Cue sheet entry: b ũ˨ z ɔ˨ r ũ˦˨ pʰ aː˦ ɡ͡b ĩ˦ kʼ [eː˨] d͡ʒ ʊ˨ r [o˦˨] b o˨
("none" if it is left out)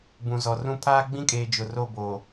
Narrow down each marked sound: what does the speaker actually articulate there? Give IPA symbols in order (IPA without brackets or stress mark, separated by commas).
eː˨, o˦˨